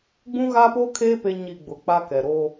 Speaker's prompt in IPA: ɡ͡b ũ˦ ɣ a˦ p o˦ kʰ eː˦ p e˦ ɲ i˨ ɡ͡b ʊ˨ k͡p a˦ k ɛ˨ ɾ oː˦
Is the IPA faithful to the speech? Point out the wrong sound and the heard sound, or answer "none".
none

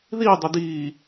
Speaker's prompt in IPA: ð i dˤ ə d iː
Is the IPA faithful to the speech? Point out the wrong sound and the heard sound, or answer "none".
none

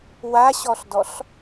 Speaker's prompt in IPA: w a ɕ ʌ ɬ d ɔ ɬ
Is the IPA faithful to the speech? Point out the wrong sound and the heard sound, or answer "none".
ʌ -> ɔ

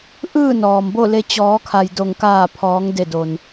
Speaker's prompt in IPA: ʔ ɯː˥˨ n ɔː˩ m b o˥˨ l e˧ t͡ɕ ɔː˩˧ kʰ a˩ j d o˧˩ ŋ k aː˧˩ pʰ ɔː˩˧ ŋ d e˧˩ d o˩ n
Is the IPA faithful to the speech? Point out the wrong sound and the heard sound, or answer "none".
none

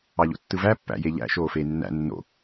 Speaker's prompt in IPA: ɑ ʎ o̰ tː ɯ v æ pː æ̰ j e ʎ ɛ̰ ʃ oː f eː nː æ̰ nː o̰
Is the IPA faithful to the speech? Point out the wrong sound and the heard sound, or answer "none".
ɛ̰ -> æ̰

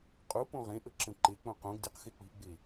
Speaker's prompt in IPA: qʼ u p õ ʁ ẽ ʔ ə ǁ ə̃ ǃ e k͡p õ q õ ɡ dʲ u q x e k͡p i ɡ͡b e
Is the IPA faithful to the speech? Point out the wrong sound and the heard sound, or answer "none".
none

